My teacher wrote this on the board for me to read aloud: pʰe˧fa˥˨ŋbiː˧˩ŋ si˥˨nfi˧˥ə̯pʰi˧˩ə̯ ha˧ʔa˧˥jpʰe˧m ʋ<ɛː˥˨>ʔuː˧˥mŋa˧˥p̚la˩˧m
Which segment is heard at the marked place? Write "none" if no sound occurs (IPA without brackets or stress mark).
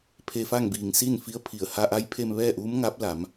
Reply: ɛː˥˨